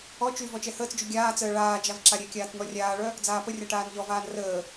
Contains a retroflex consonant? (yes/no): yes